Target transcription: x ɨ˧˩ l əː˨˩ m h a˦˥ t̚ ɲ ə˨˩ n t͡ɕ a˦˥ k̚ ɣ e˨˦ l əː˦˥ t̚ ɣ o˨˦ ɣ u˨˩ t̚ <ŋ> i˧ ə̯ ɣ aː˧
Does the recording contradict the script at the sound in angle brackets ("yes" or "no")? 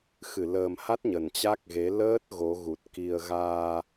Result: yes